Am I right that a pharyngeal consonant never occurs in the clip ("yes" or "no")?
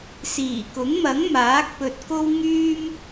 yes